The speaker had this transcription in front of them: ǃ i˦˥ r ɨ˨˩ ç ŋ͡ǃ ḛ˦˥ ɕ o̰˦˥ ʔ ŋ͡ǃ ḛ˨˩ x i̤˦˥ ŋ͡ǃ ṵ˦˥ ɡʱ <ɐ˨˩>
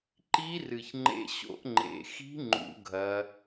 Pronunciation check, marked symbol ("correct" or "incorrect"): incorrect